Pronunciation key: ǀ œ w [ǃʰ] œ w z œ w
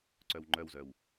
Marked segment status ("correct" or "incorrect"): incorrect